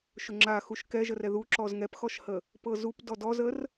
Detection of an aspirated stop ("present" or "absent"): absent